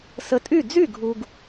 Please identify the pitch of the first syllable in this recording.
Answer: rising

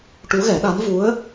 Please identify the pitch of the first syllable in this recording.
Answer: rising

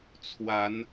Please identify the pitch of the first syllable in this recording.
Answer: rising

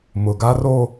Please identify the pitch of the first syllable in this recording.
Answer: low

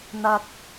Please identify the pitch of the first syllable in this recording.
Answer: high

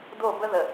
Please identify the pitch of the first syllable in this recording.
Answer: falling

